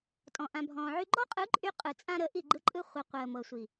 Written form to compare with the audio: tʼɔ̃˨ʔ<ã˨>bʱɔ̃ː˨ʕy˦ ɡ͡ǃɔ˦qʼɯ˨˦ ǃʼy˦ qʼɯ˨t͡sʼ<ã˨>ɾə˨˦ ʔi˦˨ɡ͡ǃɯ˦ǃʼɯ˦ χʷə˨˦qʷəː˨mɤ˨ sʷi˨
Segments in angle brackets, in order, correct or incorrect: correct, incorrect: ã˦

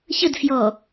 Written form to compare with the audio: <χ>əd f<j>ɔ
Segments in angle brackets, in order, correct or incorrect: incorrect: ç, correct

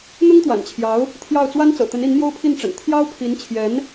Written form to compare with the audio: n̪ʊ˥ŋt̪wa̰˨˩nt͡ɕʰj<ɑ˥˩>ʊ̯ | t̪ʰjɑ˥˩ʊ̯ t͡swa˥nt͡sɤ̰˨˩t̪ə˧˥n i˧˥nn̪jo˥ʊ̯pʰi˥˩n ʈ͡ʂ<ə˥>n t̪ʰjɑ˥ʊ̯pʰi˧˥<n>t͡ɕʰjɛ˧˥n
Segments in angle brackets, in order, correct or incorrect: incorrect: ɑ˧˥, incorrect: ə̰˨˩, correct

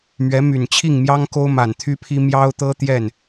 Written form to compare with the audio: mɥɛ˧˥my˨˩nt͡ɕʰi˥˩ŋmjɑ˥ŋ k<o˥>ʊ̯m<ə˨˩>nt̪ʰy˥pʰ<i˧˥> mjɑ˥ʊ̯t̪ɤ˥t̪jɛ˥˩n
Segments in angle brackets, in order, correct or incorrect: correct, incorrect: a˨˩, incorrect: i˥

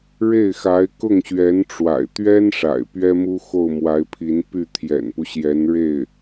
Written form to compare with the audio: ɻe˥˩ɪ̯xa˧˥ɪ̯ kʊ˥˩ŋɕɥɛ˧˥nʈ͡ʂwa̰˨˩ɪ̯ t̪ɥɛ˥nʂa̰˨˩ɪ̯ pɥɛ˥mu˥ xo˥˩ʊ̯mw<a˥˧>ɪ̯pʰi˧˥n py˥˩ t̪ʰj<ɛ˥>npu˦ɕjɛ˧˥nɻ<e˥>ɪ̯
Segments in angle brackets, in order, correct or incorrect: incorrect: a˧˥, incorrect: ɛ̰˨˩, incorrect: e˥˩

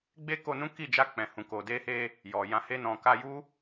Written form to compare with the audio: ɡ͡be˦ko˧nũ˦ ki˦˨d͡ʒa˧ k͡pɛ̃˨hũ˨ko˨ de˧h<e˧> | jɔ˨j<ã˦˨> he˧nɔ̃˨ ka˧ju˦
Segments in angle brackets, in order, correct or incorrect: correct, incorrect: ã˧

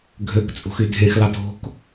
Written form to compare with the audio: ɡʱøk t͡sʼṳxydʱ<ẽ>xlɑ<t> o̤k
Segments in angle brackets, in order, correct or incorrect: correct, correct

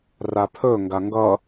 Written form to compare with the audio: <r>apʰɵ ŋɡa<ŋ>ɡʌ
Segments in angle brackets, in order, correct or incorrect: correct, correct

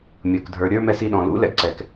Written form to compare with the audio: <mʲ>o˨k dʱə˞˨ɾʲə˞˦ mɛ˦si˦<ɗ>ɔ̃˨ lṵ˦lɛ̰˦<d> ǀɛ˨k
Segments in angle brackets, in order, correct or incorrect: correct, correct, incorrect: ɡ

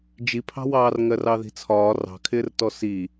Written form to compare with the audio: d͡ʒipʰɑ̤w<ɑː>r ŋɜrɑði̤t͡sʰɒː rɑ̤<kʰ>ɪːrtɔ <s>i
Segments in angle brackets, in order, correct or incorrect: correct, correct, correct

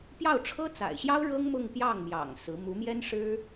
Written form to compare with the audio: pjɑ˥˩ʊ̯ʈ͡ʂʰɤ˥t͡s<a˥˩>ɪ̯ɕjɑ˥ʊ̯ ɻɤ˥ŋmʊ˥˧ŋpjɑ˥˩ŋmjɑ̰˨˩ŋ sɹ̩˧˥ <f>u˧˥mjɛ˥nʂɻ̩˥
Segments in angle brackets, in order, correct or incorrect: incorrect: a̰˨˩, incorrect: m

